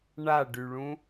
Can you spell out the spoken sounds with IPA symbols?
ɳaɖyɭũ

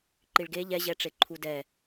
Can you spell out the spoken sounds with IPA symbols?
ǃiɭɡe ʎɛʑɛʈ͡ʂe ǃʰudɛ

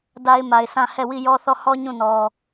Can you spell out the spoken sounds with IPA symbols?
da˦ɪ̯ma˨ɪ̯ sã˦˨ hɛ˦˨wi˦˨ jɔ˦θɔ˦˨ hɔ˦ ɲũ˦˨nɔ˨

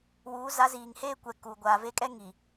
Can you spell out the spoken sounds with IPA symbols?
wuː˨˦ za˨˦ziː˨ŋheː˦ kʷɛ˨ ku˨ ɡʷaː˨ve˦kʼɛ˦ ŋi˨

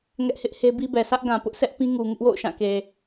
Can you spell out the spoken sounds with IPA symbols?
ŋɛ˦ʔhɪ˦ʔhe˦ bi˦bɛ˨ sʰä˦ʔɡã˨pʊ˦ʔsɛ˦ʔ pĩ˦ŋu˨ŋɪ˦ʔwo̰˦˨ʊ̯ ʃã˦˨ke˨

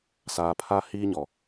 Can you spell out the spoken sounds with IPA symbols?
saː˨pʰaː˦hiː˦ ɲɔ˨

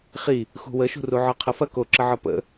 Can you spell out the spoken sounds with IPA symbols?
χi | xṳwəʃṳru ʕɒqʰɐfɐ koǁəʕɒ pə̰

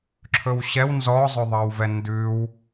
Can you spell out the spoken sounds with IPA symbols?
ǁʰɵwɕɛw nzɔzˤɵðˤɑwvɛ ndʉw

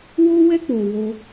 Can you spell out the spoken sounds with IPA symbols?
wo˦wɛ˦ k͡po˧wo˦

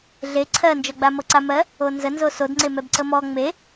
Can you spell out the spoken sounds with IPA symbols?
ɮe ǀʰɜnd͡ʒɔɡ͡ba mɤǀamɜ | onzənzo sodŋ͡ǀemɛb ǀəmɔ ŋ͡me

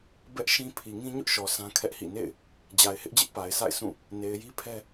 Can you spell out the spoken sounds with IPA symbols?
bɛ˦ʔʃĩ˦ pʰi˨ŋĩ˦ɲʊ˦ʔʃɔ˨ sʰã˦kʰɛ˦ʔhḭ˦˨ nḛ˦˨ɪ̯ | d͡ʑa˨ɪ̯hɪ˦ʔd͡ʑɪ˦ʔ pa˨ɪ̯sʰa̰˦˨ɪ̯ sʰũ˦˨ | ne˨ɪ̯ji˦pʰɛ˦

